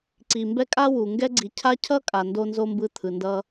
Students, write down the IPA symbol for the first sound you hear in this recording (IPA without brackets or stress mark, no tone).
ǀ